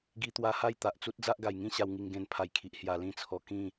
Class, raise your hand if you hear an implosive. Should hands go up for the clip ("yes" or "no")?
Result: no